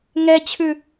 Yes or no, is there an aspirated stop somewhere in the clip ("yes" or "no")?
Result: yes